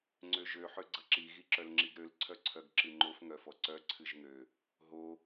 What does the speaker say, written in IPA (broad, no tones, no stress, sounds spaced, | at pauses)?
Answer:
ŋ͡ǀ ø ʒ ø ħ ø ɡ͡ǀ ʌ ǁ i ɣ i ǁ œ l ŋ͡ǁ i ɡ ɾ ø l ǀʰ œ ǀʰ œ ɡ ǁ ɨ ŋ͡ǃ o f ŋ œ f ɔ ǀ œ ǀʰ ɨ ʒ ŋ ø | ɦ o